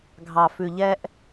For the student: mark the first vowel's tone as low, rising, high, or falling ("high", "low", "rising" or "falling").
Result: low